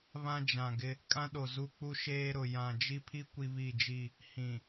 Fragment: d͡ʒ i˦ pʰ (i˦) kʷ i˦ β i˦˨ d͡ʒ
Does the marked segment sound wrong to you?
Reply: no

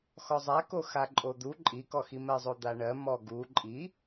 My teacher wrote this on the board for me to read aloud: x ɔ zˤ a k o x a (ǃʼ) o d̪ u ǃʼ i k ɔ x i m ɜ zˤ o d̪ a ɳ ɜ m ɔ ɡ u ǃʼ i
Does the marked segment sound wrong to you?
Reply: no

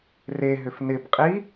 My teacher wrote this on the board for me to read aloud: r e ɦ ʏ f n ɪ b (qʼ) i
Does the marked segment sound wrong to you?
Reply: no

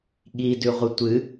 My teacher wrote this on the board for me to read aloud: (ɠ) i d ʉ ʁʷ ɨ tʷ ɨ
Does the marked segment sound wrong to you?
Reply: no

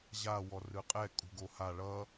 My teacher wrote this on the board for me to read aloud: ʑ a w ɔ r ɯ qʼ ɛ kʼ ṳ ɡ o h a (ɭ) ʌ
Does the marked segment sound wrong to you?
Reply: no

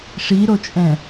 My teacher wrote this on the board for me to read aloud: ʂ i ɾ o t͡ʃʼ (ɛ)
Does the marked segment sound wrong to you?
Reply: yes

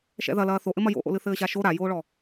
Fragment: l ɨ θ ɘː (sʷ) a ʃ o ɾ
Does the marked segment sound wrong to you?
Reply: yes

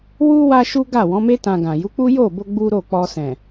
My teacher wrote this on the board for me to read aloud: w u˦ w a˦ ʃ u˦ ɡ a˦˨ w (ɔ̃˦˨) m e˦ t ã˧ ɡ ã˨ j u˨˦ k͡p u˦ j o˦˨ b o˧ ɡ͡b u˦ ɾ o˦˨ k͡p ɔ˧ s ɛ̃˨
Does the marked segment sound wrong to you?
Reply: yes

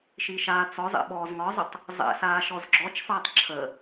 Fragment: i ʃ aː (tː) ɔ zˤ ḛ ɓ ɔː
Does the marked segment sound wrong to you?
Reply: yes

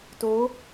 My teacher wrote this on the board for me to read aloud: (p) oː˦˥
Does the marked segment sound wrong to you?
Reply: yes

